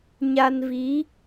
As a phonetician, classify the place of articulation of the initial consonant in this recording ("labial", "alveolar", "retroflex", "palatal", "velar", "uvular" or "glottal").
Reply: palatal